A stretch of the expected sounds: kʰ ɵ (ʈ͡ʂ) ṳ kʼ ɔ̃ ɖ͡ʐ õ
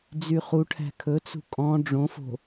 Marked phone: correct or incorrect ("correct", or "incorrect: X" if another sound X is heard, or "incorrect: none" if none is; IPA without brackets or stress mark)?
incorrect: t͡s